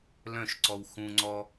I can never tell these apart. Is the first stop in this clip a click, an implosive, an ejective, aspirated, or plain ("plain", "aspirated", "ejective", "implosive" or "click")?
click